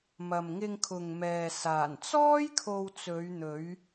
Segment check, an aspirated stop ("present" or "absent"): present